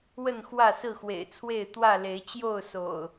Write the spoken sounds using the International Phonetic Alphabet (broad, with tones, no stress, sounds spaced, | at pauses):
w ə˥˨ n x w ä˥˨ s ɹ̩˥˨ x w ḛ˨˩ ɪ̯ t͡sʰ w e˥˨ ɪ̯ t̪ w ä˥˨ l e˨˦ ɪ̯ t͡ɕ j o˥˨ ʊ̯ s o̰˨˩ ʊ̯